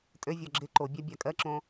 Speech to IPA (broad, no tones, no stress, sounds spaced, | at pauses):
tʼ ø vʲ ɔ ɡ͡ǁ ɪ ǃ o bʲ a bʲ a kʼ ɜ ǁ õ